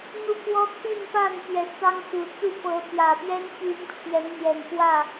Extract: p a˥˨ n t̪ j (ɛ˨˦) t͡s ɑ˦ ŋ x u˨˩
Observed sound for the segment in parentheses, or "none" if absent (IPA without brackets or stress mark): ɛ˨˦